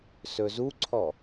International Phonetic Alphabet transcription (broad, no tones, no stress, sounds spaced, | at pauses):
s ɵ z u ǀʰ ɔ